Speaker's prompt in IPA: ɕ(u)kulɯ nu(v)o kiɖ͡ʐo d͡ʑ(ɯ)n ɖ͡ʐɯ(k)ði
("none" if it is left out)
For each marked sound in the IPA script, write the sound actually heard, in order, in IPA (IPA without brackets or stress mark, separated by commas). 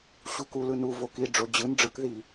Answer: u, v, ɯ, k